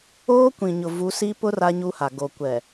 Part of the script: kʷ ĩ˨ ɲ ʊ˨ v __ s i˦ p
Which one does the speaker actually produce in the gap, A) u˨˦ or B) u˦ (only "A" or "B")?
A